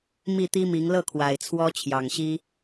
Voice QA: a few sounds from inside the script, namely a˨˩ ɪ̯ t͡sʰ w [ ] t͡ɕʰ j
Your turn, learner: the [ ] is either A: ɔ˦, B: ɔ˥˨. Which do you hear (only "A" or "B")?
A